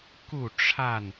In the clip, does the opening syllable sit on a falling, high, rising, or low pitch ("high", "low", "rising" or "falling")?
falling